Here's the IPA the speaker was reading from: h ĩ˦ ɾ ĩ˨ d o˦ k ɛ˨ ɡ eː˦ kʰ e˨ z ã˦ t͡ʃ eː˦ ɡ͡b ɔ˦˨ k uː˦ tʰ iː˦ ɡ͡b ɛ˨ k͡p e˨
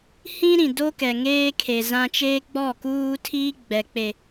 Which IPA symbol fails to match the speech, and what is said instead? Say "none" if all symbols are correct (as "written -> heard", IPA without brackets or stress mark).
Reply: ɡ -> ŋ